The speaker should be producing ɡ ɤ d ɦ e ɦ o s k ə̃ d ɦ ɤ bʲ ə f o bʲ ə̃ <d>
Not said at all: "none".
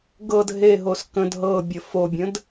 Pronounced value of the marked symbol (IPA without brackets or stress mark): d